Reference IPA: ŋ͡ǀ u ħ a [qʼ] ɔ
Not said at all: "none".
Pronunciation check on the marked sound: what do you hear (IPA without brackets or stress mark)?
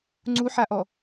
ʔ